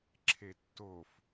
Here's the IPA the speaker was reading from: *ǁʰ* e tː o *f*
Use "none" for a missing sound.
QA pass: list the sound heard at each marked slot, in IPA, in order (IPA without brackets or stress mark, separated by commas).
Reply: ǁʰ, f